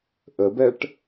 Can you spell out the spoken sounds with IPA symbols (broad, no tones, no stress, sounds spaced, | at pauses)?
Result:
ʔ ə b ɛ ʈ